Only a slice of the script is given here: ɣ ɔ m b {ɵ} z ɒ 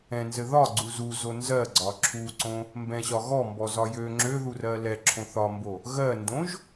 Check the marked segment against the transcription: incorrect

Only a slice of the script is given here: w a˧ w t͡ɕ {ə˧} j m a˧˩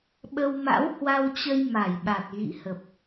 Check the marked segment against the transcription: correct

